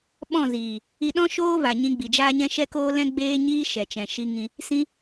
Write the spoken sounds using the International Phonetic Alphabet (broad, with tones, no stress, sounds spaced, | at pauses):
ɓ ɔ̃˦˨ z iː˨ | i˧ ɗ ɔ̃˦ ʃ oː˦ v a˨ ɲ ĩ˧ ɡ͡b i˨ d͡ʒ aː˦ ɲ ɛ̃˦ ʃ ɛ˦ k oː˦ l ɛ̃˦ ɡ͡b eː˦ ɲ iː˦ ʃ ɛ˨ t͡ʃ ɛ̃˨ ʃ i˧ ŋ ĩ˧ | s ĩ˦